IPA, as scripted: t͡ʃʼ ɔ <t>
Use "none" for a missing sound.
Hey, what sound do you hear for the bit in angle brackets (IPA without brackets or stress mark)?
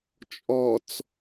t͡s